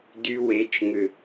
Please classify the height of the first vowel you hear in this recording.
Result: high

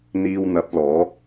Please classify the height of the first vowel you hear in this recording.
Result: high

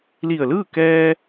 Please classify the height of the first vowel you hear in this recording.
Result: high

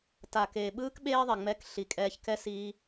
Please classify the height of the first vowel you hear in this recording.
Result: low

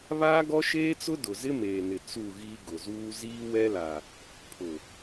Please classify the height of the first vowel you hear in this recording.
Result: low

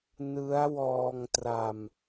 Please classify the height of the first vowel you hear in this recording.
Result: high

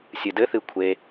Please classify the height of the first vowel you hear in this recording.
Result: high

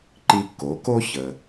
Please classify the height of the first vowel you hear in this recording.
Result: high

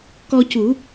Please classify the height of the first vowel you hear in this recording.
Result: mid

